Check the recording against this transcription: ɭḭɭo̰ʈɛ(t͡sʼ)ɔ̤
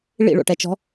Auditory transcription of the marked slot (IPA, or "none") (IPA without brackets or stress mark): t͡ʃ